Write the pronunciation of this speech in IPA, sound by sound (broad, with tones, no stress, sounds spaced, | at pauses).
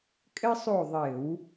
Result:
kʼ ɘ˥ sˤ o˦˨ ðˤ ɘ˧˩˧ w